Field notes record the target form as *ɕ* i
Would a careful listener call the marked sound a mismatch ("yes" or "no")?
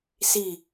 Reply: yes